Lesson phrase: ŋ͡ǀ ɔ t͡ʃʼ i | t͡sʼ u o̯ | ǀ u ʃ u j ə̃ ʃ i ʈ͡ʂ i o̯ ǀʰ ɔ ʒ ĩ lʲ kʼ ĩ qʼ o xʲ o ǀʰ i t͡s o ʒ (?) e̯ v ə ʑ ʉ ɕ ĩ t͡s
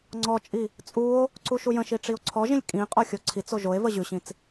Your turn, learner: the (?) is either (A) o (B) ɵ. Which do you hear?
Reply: A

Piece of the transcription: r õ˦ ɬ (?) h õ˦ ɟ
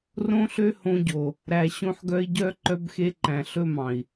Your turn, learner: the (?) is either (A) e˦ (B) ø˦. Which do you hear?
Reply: B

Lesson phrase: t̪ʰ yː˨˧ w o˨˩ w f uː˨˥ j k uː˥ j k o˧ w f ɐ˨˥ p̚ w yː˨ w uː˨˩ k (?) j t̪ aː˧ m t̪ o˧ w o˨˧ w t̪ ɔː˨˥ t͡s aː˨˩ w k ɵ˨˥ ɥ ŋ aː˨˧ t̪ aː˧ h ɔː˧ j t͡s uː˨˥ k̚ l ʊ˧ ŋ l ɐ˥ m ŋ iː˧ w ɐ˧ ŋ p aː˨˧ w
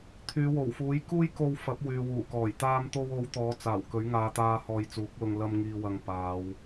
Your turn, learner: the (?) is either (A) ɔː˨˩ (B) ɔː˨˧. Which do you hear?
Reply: A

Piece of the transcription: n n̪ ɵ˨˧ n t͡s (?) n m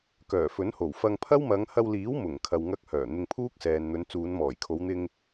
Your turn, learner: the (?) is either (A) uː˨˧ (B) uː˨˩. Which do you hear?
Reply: A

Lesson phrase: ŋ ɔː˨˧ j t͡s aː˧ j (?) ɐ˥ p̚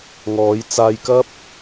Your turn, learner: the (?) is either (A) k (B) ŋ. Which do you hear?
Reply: A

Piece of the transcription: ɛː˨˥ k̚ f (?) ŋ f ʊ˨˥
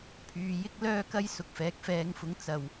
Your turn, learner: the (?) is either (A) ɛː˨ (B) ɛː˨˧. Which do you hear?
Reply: B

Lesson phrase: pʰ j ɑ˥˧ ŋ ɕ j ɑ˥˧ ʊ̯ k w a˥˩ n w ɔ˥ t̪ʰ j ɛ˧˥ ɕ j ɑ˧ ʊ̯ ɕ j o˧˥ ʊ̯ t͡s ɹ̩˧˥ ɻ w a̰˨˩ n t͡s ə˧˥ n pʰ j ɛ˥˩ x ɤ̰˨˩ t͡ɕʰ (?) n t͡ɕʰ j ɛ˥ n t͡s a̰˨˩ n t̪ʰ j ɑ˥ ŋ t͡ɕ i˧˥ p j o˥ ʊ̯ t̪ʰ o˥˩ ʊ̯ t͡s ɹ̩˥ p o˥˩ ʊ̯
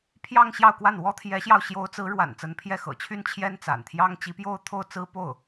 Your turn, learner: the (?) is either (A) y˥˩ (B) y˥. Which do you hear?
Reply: B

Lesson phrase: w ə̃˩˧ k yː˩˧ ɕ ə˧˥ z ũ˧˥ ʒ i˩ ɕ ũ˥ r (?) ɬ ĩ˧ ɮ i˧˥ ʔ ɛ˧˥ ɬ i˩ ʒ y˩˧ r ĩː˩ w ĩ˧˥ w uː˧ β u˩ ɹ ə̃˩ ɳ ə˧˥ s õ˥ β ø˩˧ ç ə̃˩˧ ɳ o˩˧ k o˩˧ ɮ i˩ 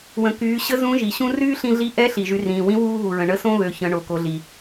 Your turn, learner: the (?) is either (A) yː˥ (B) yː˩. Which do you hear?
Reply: A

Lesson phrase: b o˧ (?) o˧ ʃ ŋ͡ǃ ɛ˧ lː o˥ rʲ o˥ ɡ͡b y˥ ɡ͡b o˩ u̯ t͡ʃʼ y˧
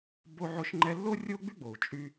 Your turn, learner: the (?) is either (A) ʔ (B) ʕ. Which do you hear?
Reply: B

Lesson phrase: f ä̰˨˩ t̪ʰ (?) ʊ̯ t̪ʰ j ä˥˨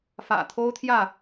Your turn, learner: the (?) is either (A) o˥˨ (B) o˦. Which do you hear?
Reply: B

